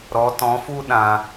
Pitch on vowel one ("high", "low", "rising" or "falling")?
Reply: rising